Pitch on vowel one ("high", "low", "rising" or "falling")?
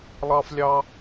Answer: high